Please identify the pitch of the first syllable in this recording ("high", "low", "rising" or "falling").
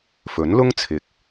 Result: rising